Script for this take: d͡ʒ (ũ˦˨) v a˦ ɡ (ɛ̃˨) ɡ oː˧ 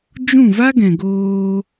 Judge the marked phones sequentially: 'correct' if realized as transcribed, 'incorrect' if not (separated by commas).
correct, correct